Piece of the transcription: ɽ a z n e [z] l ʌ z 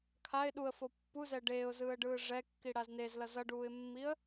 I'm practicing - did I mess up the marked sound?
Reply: no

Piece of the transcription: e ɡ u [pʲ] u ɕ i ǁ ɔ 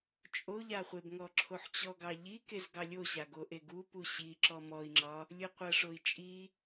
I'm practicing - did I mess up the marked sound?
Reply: yes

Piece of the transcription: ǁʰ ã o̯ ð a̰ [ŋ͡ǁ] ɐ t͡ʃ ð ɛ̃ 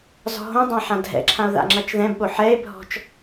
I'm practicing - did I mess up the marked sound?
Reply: no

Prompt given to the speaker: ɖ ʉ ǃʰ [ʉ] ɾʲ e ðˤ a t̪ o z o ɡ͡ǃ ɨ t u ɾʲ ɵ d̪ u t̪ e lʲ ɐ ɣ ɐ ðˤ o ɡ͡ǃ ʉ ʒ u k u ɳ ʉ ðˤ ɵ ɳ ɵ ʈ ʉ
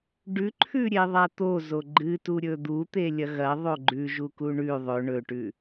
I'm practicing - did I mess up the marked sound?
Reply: no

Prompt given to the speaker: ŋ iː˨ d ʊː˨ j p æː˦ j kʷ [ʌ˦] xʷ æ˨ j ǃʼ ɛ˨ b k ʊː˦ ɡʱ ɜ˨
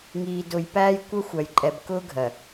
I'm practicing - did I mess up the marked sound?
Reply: no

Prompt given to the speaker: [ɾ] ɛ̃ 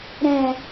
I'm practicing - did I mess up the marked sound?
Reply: no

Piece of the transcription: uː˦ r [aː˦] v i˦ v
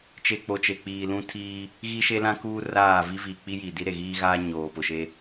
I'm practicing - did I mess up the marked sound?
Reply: yes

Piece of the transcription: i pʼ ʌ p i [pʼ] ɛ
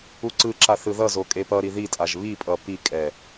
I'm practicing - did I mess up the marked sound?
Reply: yes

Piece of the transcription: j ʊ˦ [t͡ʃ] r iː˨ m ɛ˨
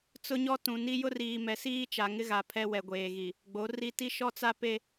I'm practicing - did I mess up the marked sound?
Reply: yes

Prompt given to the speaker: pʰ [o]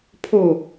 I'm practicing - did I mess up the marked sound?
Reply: no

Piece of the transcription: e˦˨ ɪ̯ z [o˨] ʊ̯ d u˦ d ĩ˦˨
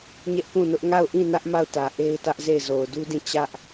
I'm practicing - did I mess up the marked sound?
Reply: no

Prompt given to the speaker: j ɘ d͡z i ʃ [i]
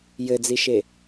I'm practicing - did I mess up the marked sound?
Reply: yes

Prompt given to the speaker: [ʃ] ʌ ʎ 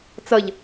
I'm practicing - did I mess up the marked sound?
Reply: yes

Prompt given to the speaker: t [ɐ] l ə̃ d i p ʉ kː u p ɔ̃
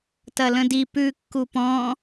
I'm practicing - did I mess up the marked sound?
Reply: no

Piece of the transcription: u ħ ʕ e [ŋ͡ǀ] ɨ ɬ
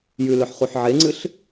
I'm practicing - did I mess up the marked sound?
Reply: no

